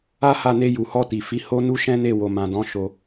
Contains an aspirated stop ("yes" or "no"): no